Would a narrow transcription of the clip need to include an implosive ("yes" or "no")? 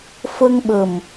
yes